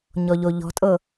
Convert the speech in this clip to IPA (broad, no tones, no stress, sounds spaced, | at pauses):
ɲ ɔ ʎ o ʎ ɔ̤ tʼ ɤ